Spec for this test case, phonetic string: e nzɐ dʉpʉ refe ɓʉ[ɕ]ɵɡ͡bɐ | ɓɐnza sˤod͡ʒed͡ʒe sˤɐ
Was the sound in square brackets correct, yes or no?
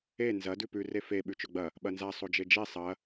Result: no